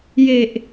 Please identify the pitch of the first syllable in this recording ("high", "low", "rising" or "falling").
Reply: low